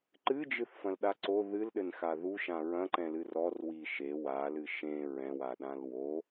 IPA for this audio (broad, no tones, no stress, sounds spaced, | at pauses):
ǃ ɨ d͡ʒ ɨ θ f ɐ̃ l ɗ a ǀ o ð ɨ l ɗ ɘ n x a ð u ʃ ã ɹ ɐ̃ ǃ ɛ̃ l ɨ r ɔ r w i ʃ e w a l ɨ ʃ ẽ ɹ ɛ̃ w a ɗ ã l w o